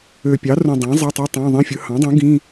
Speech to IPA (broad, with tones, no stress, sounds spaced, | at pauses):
ø˨˩ pʲ ɑ˩˥ r ũ˨˩ dˤ ɑ̃˩˥ zˤ e˧˥˧ tˤ i˧˥˧ tˤ ɑ̃˧˥˧ ðˤ ĩ˧˥˧ fʲ ɯ˩˥ h ɑ̃˩˥ dˤ ũ˩˥ ɡ ĩ˧˥˧